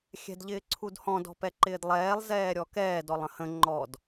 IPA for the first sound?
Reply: xʲ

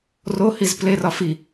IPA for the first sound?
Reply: r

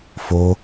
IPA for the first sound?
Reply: f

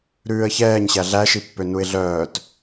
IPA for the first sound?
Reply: ɾ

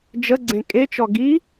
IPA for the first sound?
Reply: d͡ʒ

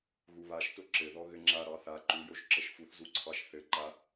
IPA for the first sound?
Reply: ɣ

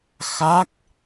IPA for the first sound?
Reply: x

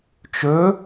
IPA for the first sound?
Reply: t͡ʃ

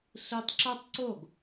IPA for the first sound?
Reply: ɬ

